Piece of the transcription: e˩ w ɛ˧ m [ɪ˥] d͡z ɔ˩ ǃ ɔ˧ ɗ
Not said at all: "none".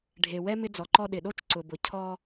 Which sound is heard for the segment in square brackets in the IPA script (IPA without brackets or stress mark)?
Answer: ɪ˧